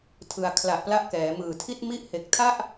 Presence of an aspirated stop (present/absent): present